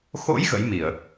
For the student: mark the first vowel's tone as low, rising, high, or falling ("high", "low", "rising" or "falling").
rising